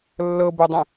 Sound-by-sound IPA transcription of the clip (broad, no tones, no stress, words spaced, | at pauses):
lːɤbodˤĩ